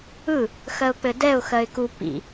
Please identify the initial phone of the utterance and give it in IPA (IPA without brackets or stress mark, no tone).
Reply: ɯ